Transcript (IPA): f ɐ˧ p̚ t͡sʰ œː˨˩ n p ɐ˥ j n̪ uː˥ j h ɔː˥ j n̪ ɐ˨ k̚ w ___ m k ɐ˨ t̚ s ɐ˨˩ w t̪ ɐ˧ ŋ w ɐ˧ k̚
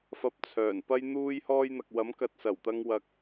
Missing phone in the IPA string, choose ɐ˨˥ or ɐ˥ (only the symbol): ɐ˨˥